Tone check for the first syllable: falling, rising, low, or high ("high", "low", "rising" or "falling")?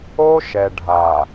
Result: high